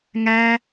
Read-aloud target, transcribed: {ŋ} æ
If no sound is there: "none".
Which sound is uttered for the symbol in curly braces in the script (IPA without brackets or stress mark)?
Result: ŋ